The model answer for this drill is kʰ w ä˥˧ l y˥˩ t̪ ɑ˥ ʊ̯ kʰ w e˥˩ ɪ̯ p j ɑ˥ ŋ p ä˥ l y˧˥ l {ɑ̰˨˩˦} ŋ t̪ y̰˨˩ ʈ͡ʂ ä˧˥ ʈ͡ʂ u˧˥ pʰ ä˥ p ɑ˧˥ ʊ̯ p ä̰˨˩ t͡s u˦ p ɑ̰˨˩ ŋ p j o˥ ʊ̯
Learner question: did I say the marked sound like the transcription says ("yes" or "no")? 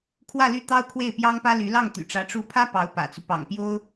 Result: no